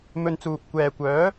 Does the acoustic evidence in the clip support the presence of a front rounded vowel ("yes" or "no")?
yes